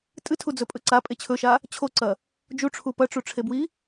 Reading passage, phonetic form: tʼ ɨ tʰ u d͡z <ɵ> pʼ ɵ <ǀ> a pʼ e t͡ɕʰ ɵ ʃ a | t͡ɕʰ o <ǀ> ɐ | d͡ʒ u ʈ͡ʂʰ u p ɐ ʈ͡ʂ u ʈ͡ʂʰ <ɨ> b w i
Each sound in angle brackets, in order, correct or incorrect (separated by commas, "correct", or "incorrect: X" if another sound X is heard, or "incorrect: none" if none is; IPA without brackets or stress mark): correct, correct, correct, incorrect: e